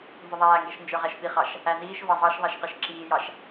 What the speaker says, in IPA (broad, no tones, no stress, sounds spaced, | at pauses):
n z ʊ ðˤ æː ŋ ɡ ɛ ʃ n d͡ʒ ə˞ ʁ æ ʃ p i χ ɑ ʃ | æ n iː ʃ v ɑ zˤ ɑ ʃ ðˤ æ ʃ q ɛ ʃ ǁ iː j ɑ ʃ